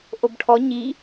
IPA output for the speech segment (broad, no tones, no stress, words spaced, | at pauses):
ʔobʈʰɔ ɲi